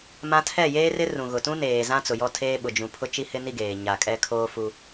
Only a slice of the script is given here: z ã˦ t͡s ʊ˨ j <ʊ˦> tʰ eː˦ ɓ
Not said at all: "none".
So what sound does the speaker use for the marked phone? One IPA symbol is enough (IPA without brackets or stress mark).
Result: ɔ˦